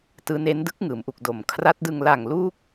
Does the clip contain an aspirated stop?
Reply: yes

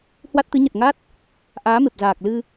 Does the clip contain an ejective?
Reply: no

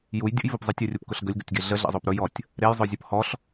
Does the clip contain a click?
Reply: no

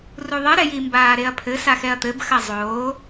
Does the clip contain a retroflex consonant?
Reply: no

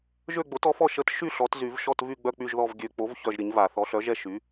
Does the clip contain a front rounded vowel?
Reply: yes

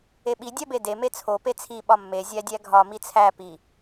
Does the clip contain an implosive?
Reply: yes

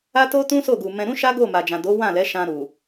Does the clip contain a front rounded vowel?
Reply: no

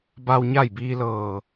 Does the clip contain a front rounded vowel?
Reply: no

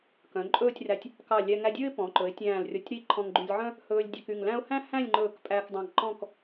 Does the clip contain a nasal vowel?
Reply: yes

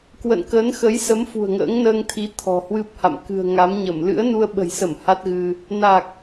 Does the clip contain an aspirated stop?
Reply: yes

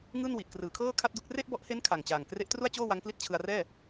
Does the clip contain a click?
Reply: no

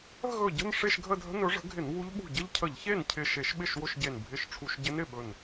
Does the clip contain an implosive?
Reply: yes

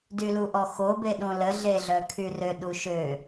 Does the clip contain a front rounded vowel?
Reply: yes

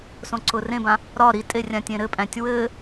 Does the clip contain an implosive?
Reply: no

